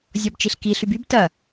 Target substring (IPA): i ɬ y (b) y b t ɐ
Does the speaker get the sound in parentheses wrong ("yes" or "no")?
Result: no